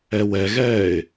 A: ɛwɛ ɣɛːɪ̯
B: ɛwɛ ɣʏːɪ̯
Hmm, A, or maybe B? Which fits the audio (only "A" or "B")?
A